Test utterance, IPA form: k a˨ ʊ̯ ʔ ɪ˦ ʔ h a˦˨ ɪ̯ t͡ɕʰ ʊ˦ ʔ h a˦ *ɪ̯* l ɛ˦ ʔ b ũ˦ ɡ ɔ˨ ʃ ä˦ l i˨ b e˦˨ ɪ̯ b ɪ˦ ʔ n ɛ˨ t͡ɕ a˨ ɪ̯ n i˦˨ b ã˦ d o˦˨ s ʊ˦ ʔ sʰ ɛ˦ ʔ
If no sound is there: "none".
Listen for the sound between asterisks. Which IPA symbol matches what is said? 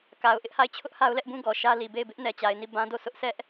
ʊ̯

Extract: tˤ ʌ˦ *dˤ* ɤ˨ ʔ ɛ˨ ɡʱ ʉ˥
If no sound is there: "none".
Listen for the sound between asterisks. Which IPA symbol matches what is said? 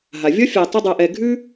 dˤ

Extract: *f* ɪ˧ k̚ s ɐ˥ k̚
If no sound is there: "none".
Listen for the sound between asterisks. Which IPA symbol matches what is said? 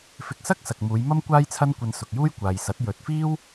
f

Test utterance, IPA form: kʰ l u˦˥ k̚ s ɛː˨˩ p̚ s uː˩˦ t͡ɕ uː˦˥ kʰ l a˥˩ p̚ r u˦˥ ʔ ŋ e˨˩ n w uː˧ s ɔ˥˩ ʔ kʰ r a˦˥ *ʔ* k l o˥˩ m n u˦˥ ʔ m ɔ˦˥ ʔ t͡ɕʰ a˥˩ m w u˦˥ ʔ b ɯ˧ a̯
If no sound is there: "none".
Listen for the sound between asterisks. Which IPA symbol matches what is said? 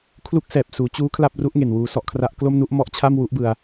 ʔ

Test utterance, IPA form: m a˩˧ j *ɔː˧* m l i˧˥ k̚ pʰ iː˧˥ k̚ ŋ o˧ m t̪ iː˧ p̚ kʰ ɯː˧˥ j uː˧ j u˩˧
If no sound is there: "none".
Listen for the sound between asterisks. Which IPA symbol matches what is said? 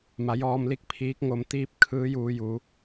ɔː˧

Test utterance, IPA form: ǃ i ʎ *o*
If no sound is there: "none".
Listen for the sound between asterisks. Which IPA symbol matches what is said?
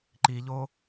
o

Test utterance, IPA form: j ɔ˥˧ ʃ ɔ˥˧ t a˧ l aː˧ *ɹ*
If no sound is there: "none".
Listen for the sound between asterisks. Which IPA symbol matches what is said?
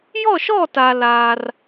r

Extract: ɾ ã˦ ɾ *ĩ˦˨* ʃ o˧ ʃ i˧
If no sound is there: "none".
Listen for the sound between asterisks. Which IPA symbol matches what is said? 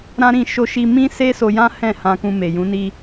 ĩ˦˨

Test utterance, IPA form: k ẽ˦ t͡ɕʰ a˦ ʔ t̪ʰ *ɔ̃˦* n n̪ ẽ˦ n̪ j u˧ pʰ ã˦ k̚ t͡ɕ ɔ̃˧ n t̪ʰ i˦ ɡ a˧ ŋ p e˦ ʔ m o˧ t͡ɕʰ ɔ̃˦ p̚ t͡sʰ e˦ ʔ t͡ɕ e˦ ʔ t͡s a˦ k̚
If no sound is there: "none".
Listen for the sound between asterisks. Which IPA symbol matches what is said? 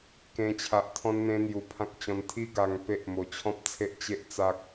ɔ̃˦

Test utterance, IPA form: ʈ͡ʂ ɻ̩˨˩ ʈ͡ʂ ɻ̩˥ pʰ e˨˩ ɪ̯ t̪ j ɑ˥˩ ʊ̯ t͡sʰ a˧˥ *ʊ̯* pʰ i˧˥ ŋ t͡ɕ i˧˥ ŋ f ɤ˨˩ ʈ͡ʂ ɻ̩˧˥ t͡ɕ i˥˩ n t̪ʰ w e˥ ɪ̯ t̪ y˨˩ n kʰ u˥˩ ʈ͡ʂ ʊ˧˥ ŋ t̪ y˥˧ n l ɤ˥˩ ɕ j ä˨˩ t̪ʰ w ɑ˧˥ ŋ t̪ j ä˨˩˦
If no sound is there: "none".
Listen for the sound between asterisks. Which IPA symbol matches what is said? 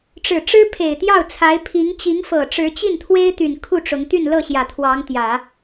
ɪ̯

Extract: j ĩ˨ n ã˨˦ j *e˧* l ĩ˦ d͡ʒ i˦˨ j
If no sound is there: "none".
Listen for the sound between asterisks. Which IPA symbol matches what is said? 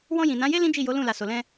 e˦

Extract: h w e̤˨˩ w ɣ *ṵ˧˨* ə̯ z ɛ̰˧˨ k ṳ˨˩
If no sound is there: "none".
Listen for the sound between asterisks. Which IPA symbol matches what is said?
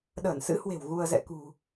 u˧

